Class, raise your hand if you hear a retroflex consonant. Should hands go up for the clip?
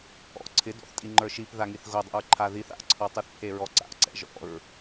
no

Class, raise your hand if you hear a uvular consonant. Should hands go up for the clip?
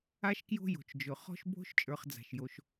yes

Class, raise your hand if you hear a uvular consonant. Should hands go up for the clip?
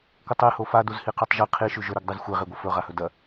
yes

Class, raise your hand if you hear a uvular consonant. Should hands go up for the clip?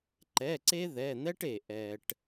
no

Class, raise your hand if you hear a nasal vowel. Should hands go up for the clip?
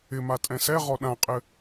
yes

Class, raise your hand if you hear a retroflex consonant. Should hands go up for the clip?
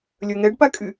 yes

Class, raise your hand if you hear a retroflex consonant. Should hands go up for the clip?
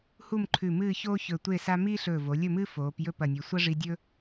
yes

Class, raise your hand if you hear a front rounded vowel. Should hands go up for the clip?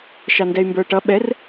yes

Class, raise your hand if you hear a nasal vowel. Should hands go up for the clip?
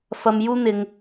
no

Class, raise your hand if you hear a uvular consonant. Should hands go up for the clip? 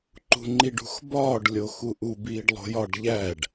no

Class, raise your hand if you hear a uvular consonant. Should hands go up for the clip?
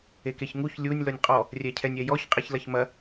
yes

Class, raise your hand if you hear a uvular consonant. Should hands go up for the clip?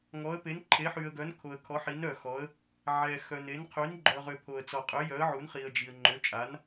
yes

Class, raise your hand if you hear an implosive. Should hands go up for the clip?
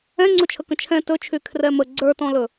no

